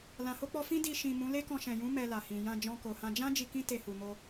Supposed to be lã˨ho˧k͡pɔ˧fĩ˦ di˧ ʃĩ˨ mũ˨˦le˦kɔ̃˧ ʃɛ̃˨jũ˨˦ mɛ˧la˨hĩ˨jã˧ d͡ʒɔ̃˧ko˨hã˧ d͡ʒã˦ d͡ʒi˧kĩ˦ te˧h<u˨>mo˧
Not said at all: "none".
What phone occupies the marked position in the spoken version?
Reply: u˨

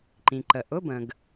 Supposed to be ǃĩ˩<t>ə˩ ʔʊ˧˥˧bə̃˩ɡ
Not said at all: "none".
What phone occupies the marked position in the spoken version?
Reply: ǃ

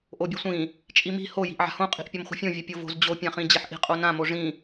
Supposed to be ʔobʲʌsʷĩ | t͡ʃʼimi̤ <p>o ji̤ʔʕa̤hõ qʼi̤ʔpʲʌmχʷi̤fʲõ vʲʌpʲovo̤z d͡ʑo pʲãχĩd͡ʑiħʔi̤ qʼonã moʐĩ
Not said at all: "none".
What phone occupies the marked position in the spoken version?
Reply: h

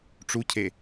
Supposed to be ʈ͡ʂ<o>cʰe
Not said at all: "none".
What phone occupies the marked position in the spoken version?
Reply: u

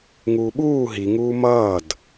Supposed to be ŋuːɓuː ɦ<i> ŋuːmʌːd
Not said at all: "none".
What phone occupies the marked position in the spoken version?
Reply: i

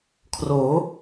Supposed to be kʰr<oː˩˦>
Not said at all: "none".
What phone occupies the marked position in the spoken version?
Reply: oː˩˦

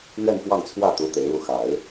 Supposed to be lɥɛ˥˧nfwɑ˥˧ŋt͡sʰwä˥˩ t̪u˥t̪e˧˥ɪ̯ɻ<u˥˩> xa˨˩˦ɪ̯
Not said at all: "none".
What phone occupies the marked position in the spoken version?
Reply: u˥˩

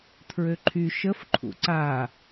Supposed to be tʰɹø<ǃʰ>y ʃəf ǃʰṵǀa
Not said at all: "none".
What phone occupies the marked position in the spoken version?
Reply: ǃʰ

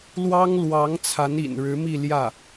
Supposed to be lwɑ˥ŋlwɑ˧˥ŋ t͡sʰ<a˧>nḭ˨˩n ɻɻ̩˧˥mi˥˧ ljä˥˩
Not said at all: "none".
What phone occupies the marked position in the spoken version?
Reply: a˧˥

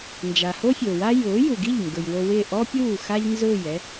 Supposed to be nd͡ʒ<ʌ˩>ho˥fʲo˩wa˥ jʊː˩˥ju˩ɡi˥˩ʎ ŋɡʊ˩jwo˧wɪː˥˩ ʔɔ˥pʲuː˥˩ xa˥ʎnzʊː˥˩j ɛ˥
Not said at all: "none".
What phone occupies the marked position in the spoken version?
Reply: a˩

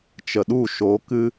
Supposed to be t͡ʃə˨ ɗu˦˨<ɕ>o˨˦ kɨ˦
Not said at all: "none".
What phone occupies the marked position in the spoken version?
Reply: ʃ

